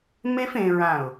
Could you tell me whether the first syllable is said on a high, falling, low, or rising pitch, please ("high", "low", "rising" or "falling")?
high